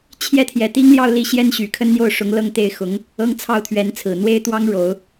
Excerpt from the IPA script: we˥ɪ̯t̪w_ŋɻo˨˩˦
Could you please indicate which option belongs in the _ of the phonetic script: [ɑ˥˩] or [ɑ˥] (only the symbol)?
ɑ˥